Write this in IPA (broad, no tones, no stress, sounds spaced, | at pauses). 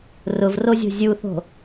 r ʊ v r o zʲ o̤ zʲ u θ o̤